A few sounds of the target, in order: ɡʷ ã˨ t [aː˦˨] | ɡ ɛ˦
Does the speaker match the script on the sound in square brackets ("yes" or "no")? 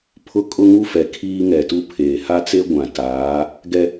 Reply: no